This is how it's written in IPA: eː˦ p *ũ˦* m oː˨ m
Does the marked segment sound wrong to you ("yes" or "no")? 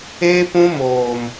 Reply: no